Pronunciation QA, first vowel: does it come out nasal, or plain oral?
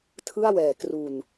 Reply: oral